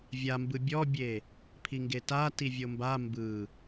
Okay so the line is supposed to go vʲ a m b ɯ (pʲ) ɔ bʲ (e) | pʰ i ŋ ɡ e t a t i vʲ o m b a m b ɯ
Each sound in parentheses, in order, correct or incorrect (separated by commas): incorrect, correct